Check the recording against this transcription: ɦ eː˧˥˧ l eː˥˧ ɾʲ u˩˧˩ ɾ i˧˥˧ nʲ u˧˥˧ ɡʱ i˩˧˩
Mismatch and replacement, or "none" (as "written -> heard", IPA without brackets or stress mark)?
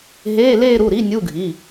ɾʲ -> ɾ